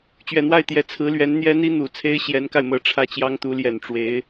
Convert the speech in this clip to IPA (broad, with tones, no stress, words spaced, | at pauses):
t͡ɕɥɛ˨˩n̪wa˥˩ɪ̯t̪jɛ˧˥ t͡sʰɹ̩˧˥lɥɛ˧˥n n̪jɛ˥n̪i˥n̪u˨˩t͡sʰe˥ɪ̯ ɕjɛ˧˥nka˧ɪ̯mɤ˨˩ ʈ͡ʂʰä˥˩t͡ɕjɑ˥ŋt̪u˧˥ljɛ˨˩n ʈ͡ʂwe˧˥ɪ̯